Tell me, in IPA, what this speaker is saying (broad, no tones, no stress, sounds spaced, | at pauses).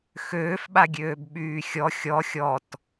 x øː f ɓ a ɡʲ øː b ɓ yː xʲ ɔ xʲ ɔ xʲ ɔ t